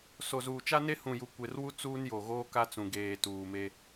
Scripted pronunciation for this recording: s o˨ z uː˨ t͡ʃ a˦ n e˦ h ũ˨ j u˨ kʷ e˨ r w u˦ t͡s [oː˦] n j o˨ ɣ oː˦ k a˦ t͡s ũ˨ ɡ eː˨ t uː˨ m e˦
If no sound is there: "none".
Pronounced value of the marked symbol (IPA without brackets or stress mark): uː˦